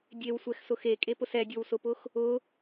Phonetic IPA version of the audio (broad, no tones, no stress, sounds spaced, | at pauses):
dʲ e w sʷ ɛ x s ʊ x e kʼ e p ʊ s ɛ dʲ o w s ʊ p ʊ x | ʊ